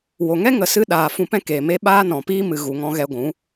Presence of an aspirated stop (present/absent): absent